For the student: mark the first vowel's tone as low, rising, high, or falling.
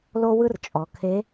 high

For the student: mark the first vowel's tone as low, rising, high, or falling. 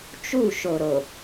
falling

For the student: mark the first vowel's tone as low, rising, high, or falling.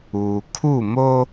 low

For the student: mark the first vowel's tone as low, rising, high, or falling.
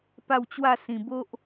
falling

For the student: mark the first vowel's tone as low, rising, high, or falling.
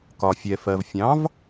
low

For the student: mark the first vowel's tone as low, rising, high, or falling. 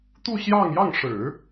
falling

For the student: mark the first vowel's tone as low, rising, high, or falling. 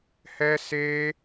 high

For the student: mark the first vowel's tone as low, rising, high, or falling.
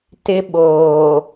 high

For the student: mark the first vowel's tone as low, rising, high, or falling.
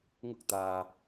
high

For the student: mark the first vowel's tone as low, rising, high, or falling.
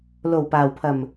low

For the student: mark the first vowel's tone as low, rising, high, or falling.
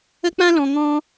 high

